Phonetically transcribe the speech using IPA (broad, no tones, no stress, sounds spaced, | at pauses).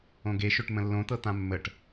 õ ɡ e ʃ ø ʈ m ə̃ lː õ t̪ ɤ t̪ ã mː ə ʈ